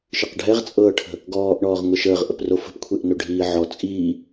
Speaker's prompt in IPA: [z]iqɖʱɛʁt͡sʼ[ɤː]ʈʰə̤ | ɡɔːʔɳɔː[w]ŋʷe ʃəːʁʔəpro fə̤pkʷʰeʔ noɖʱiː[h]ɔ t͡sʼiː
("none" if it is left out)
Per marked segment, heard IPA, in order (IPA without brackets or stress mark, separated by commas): ʃ, ɤː, ʁ, ʕ